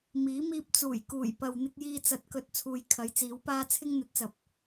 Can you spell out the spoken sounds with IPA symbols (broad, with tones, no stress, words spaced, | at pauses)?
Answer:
miː˨˥ miː˧p̚t͡suː˨˩j kuː˨˩jpɐ˨w n̪ɪ˧k̚jiː˧ t͡sɐ˧t̚kɵ˧t̚ t͡sʰuː˨jkʰɐ˨˥jt͡siː˨˥wpaː˥ t͡sʰɪ˥ŋn̪ɵ˨˥t̚t͡sɐ˨p̚